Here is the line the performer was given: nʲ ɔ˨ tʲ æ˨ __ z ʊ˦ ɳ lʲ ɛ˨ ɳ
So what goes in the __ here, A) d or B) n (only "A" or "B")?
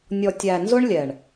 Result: B